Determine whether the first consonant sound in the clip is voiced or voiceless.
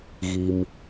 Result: voiced